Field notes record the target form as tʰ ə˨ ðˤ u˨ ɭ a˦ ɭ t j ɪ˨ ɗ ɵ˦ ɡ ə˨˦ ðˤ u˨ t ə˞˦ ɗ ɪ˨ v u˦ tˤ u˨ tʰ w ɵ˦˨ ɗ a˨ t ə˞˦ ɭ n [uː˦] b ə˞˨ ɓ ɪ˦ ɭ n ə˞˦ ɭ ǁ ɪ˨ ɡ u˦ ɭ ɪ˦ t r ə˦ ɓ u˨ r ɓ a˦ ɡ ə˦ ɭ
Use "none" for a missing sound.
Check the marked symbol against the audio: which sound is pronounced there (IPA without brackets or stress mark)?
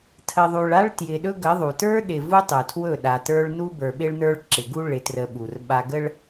u˦